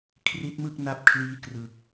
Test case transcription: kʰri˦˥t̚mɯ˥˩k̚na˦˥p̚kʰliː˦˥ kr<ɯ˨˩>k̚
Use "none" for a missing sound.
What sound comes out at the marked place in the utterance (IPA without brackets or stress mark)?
ɯ˨˩